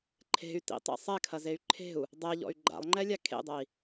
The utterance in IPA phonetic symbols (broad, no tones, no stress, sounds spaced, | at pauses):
ǃʰ e̤ y̯ t ḭ tˤ ḛ sˤ ɛ kʰ ɐ z e y̯ ǃʰ e̤ u̯ | dˤ ɛ ʎ ɔ̰ y̯ ɡ͡ǃ a̰ lˠ ŋ͡ǃ ɛ lʲ a kʰ ḛ dˤ ɐ i̯